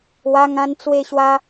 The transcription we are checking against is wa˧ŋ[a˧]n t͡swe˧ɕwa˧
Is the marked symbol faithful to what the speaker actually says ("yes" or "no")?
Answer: no